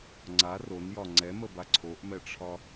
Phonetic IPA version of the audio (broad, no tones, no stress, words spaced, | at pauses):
ŋ͡ǀa ronjɒ ŋ͡ǀɛməba ǀʰoʔmɛʈ͡ʂʰɒ